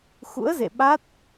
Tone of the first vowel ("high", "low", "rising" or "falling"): rising